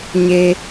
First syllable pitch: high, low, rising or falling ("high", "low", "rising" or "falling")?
low